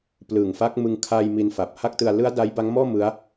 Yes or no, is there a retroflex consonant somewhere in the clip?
no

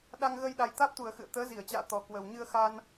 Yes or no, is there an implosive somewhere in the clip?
yes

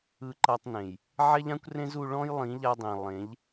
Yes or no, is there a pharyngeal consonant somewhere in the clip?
yes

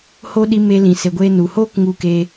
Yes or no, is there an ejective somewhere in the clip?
no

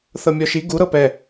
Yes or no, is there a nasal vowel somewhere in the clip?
no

